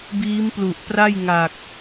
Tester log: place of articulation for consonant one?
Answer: labial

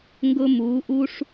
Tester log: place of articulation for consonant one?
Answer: velar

